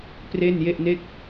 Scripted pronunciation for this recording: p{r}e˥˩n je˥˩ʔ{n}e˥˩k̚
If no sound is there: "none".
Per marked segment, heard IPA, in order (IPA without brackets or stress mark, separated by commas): r, n